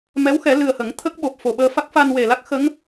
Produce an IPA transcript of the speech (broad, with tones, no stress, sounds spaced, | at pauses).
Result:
m ɛ˧˥ w x ɛ˨˩˦ l ɨ˨˩ ə̯ h ə˨˩˦ ŋ t̪ʰ ə˦˥ k̚ ɓ o˨˩ p̚ f o˨˩ ɓ əː˧ f a˦˥ k̚ f a˧ n w e˨˩ l a˦˥ k̚ x ə˧˥ ŋ